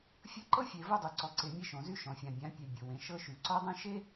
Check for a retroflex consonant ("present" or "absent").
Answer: absent